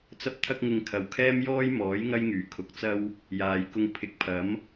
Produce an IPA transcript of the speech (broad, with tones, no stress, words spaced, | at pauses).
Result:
t͡sɐ˧p̚t̪ʰɐ˧k̚ŋɪ˨ŋ kʰɐ˨wkʰɛː˥m jɔː˥jmɔː˨˥j ŋɐ˥jŋyː˨˩kʰʊ˨k̚ t͡sɐ˥w | jaː˨jkʊ˧ŋ pʰɪ˨˥k̚pʰɐ˨˥m